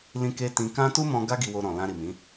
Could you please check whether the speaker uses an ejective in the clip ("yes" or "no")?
no